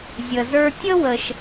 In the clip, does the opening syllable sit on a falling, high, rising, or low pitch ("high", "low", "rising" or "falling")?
low